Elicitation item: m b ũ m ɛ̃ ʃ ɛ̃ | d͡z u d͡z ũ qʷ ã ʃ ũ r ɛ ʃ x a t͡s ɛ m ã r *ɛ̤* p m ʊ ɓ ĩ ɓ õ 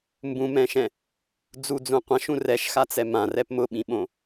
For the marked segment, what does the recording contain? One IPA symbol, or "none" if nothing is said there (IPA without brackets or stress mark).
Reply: ɛ